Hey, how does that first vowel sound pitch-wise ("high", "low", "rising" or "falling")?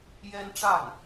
high